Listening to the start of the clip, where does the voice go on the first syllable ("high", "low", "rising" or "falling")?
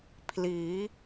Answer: rising